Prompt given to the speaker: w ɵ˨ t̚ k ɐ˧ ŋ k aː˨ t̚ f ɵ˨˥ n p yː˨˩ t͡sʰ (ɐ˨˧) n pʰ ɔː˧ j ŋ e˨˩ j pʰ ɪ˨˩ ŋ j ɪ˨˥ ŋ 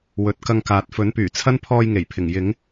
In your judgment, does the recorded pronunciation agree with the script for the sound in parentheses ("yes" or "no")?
no